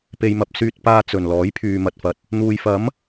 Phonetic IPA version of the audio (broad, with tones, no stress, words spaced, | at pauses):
pe˧jmɐ˧p̚ syː˧t̚paː˧ t͡sɵ˨˩nlɔː˨˥j pʰyː˨mɐ˨t̚fɐ˨t̚ | n̪uː˨jfɐ˨˥m